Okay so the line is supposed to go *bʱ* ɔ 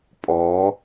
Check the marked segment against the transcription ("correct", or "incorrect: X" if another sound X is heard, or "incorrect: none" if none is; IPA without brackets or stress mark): incorrect: pʼ